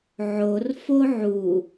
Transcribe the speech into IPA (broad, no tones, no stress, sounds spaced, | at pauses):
ʕ o r f o ʕ u